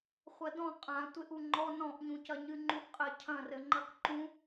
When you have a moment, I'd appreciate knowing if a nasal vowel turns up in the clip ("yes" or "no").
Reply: yes